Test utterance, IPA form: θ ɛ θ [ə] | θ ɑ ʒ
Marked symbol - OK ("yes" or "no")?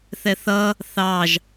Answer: no